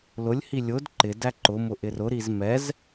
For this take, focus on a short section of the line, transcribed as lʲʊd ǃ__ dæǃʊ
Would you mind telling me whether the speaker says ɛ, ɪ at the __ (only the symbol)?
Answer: ɪ